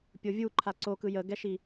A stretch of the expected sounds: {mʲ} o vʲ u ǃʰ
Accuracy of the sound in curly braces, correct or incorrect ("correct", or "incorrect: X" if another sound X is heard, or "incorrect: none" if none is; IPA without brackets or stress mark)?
incorrect: pʲ